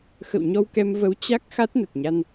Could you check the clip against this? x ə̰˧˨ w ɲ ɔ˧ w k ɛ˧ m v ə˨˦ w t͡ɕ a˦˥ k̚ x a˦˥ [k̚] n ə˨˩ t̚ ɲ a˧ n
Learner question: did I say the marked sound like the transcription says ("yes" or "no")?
no